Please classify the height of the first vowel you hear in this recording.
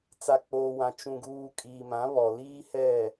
low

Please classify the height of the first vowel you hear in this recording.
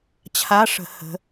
low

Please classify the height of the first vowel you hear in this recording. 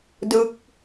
high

